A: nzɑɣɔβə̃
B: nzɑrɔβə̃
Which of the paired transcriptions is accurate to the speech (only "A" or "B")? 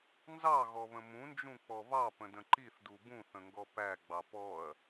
A